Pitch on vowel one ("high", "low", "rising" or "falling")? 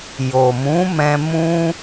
low